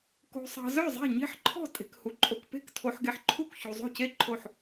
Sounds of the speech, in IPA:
k o̤˨ sˤ ɑ̤˨ z œ˥˩ zˤ e̤˥˩ ɲ e̤˥˩ ħ ǃʰ ɔ̤˥˩ tʼ e̤˨ k h u˨ ǃʼ o˨ k p e̤˥˩ k tʰ o˨ ħ ɡ e˨ ħ ǃʰ u˥˩ k ç u˨ zˤ o̤˥˩ c e˥˩ ǃʰ o˥˩ ħ

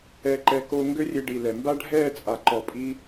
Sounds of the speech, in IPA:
ɛ˧ ǃ ɛ˧ k o˧ ŋ ɡ ø˦ rʲ e˧ ɖ i˨ l ɛ˨ m b a˦ ɖʱ ɛː˦˨ t͡sʼ a˨ ǃ ɔ˨ pʼ i˧

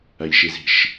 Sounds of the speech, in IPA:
ɐ ʎ ʃ i z i̤ ʃ

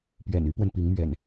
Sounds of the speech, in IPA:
p ɥ ɛ̰˨˩ n y˦ p w ə˨ n p i˨˦ ŋ m ɥ ɛ̰˨˩ n

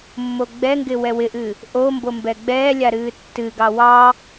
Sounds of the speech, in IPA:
mː o ɡ͡b ɛ ŋ ɡ ɪ w ɛ w ɪ ʔ ɨ | ʔ o m b o m b ɛ ɡ͡b ɛː lʲ a ɾ ɨː tː ɨ ɡ ɑ w ɑ

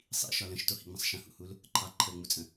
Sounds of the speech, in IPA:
sˤ ḭ ʃ ɒ l ə̃ ʃ t o h ḭ ŋ͡m ə̃ sˤ ʃ ə̃ h ṵ h u l | ǃʰ ɑ ǃʰ əː ŋ͡m u t͡sʼ ə̃

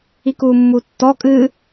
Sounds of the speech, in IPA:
i k uː mː u tː ɔ kʼ ɨ

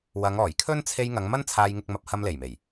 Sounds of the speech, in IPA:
w ɐ˨˧ ŋ ɔː˨˩ j kʰ ɵ˥ n t͡sʰ e˧ j ŋ ɐ˨˧ ŋ m ɐ˥ n t͡sʰ aː˧ j ŋ ɪ˧ k̚ m ɐ˧ p̚ h ɐ˧ m l e˨˩ j m e˨˩ j

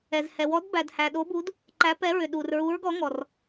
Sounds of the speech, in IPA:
ɛ˧ z h ɛ˧ w ɔ˧˥ d b æ˧ d h æ˧ ɗ o˧˥ b u˧˥ d | ǃ æ˧˥ p ɛ˧˥ ɹ ʏ˧ ɗ u˧ r ɹ u˧˥ ɹ ɡ ɔ˧˥ ŋ ɔ˧ r

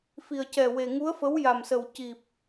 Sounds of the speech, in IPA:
f i˨˩ ə̯ c ɛ˨˩ w e˨˩ ŋ u˧˥ ə̯ f ə˧˥ w j a˨˩ m s ə˨˩ w c i˨˩ p̚

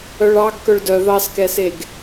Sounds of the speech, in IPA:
œ ɭ ɑ ɡ k œ ɭ d œ ð ɑ s k ɛ s e ɡ

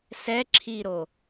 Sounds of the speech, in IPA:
s ɛ ǁʰ i ɾ o

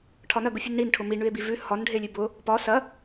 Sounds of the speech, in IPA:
ʈʰ ɒ n ɐ ɡ ʊ fʲ ʉ n ɳ i n ʈʰ ʊ m i ɳ ʉ e̯ b i v ʉ h ɒ n ɖʱ e lʲ ʉ b ʊ | p ɒ s ɐ

